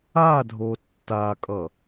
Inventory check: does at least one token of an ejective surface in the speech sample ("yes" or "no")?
yes